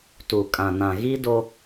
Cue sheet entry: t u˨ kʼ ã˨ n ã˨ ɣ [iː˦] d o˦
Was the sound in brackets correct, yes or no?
no